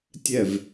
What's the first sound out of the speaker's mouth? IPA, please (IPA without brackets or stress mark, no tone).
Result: tʲ